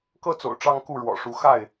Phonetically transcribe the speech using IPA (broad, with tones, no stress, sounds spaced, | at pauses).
k ɤ˦ t͡s o̰˨˩ ʊ̯ ʈ͡ʂ ɑ˦ ŋ k u˥˨ ɻ w ɔ̰˨˩ ʂ u˨˦ x a˥˨ ɪ̯